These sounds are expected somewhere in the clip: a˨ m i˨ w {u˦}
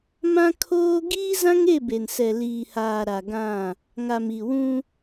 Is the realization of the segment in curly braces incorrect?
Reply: yes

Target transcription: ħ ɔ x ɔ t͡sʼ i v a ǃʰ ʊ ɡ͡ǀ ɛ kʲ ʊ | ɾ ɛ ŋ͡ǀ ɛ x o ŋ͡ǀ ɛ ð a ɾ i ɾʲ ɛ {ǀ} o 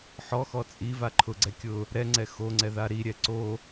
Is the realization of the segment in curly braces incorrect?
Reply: no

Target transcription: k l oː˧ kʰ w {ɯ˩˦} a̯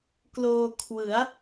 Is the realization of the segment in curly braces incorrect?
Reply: no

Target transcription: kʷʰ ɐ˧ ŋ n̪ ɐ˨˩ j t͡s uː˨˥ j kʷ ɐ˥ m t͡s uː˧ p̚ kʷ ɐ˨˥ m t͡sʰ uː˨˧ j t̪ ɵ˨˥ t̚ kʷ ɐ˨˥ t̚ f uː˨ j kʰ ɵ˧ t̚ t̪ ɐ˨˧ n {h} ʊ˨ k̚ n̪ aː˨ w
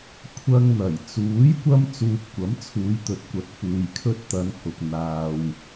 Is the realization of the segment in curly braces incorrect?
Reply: no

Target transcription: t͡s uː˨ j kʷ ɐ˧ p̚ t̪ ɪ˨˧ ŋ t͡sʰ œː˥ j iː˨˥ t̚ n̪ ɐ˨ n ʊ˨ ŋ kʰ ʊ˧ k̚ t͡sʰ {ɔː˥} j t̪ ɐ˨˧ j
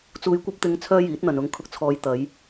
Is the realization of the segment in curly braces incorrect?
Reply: yes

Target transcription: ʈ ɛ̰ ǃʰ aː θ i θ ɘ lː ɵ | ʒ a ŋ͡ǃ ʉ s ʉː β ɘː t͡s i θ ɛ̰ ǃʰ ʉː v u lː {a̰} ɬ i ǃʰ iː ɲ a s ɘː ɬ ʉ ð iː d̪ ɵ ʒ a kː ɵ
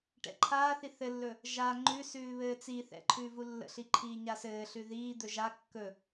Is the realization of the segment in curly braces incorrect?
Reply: yes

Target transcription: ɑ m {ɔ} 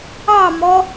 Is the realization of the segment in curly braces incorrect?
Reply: no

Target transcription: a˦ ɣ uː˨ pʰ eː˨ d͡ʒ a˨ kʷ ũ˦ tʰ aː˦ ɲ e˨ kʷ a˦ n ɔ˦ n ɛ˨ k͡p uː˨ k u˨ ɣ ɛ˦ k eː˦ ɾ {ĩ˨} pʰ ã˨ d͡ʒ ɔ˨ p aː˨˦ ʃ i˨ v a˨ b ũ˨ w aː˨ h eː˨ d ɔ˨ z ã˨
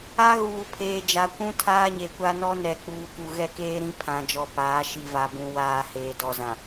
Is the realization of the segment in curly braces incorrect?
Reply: yes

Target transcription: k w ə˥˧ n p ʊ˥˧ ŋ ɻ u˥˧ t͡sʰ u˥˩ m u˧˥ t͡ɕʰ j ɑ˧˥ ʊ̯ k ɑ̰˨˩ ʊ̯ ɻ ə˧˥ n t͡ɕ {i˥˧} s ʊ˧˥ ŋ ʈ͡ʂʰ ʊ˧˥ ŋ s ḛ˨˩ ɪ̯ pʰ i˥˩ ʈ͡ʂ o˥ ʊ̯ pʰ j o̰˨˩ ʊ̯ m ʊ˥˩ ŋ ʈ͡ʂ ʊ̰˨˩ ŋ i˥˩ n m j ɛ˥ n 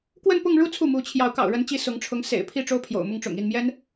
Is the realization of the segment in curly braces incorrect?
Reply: yes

